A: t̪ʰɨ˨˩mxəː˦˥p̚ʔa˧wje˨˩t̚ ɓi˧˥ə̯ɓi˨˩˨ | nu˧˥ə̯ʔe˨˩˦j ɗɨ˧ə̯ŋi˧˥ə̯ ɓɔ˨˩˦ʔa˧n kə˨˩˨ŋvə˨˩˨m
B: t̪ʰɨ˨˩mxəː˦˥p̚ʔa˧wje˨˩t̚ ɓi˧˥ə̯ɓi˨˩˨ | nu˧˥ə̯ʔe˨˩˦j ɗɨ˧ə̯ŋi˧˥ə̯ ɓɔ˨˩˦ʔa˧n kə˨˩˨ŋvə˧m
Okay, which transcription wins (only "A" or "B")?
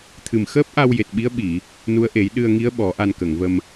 B